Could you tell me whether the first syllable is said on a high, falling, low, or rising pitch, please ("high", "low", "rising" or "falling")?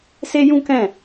high